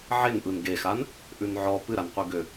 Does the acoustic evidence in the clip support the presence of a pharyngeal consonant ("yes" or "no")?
yes